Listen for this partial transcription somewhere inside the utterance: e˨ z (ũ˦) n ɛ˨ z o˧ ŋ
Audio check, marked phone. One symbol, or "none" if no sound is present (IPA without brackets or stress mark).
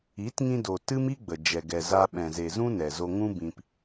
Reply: ũ˦